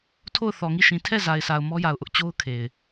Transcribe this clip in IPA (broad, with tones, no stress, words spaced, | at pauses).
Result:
tʰo˦˨ʊ̯θɔ˨ŋi˦˨ʃĩ˨ tʰɛ˦˨ za˨ɪ̯sʰa˨ʊ̯ mɔ˦ja˨ʊ̯ʔʊ˦ʔ t͡ɕo˦ʊ̯kʰe˨ɪ̯